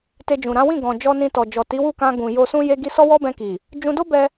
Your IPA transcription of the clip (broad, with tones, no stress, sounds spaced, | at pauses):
t e˧ d͡ʒ ũ˨ ɾ ã˨˦ w ĩ˦˨ ɡ ɔ̃˨ d͡ʒ ɔ˧ n ĩ˧ t ɔ˨ d͡ʒ ɔ˨ t i˨˦ w u˦˨ k ã˧ ɡ ũ˨ j o˧ s ũ˦ j e˦ ɡ i˦ s ɔ˦ w ɔ˦ b ɛ̃˧ k i˨ | d͡ʒ ũ˧ d o˦ b ɛ˧